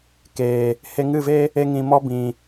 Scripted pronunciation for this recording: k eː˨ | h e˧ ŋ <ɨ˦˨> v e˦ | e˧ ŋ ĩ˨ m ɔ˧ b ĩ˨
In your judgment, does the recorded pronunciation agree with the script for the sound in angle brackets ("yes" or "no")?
yes